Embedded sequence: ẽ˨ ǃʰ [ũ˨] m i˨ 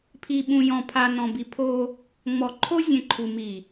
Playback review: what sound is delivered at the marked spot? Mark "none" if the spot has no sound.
u˨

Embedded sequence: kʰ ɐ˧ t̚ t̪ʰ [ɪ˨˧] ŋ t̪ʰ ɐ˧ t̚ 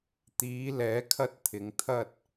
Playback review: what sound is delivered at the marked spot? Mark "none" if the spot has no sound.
ɪ˨˧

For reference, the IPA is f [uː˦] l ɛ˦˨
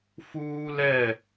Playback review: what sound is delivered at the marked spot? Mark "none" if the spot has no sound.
uː˦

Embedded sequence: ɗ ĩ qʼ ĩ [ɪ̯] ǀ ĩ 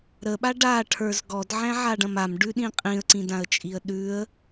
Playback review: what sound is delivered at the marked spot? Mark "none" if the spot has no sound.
ə̯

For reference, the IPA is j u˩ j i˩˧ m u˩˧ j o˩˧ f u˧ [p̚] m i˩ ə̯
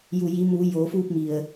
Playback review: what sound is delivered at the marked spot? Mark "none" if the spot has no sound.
p̚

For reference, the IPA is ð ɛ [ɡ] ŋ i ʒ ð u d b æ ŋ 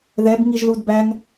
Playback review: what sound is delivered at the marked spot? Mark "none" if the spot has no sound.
b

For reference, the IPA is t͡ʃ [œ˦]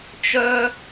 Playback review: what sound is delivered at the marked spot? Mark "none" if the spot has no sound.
œ˦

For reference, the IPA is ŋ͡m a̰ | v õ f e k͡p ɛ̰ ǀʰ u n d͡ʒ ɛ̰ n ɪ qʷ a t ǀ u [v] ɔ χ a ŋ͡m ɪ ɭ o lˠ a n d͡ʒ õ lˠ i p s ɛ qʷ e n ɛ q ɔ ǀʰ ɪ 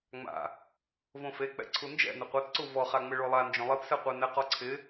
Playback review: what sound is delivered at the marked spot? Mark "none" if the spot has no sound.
v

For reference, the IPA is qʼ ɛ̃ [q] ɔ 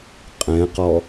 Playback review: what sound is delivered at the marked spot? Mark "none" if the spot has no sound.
q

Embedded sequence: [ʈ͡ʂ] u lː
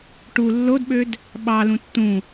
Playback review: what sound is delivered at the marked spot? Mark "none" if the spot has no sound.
ʈ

